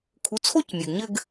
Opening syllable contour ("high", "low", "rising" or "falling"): rising